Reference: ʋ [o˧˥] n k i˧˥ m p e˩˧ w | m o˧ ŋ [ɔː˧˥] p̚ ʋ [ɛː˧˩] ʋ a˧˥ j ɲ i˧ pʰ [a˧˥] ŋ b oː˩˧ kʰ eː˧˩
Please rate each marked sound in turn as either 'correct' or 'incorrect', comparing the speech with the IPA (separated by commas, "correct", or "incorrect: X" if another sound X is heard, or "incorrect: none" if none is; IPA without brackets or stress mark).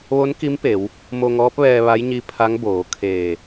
correct, correct, incorrect: ɛː˧, correct